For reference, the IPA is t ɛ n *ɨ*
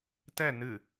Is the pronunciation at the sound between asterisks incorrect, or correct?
correct